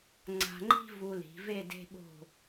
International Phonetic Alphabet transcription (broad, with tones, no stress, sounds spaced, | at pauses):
ŋ͡ǀ a̤˧ ŋ͡ǃ i̤˥ v u˧ l i̤˩˧ v e˥˧ d e̤˧ ɓ o̤˧˩